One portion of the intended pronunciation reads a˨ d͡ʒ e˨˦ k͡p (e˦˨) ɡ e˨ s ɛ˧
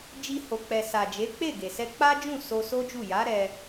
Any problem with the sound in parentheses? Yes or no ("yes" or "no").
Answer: no